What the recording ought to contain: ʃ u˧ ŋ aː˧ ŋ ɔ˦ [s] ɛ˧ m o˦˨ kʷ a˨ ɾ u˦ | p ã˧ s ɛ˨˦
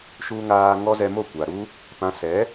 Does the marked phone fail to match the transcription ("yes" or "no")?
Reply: yes